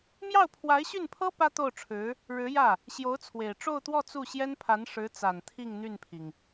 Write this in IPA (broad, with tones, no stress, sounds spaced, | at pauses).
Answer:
m j ɑ˥˩ ʊ̯ pʰ w a˧˥ ɪ̯ ɕ y˥˩ n pʰ ɤ˥ p ä˥ t̪ o˥˩ ʊ̯ ʈ͡ʂʰ ɻ̩˧˥ | ɻ ɻ̩˧˥ j ä˥˩ | ɕ j o˧˥ ʊ̯ t͡sʰ w e˨˩ ɪ̯ ʈ͡ʂ o˥˧ ʊ̯ t̪ w ɔ˥˧ t͡s u˥˩ ɕ j ɛ˥ n pʰ a˧˥ n ʂ ɻ̩˧˥ t͡s a˨˩ n t̪ʰ i˥˧ ŋ n̪ y˥˩ n pʰ i˩ ŋ